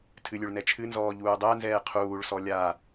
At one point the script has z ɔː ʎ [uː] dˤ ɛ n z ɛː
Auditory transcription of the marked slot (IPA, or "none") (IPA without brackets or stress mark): uː